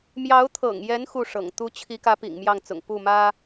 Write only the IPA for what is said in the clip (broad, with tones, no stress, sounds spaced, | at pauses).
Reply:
m j ɑ˧˥ ʊ̯ t̪ʰ ɤ̰˨˩ ŋ j ɛ˧˥ n x u˥˩ ʂ ɤ̰˨˩ ŋ t̪ u˥ t͡ɕʰ i˧˥ k ä˧˥ p ḭ˨˩ ŋ m j ɑ˥˩ ŋ t͡s ʊ̰˨˩ ŋ p u˥˩ m ä˥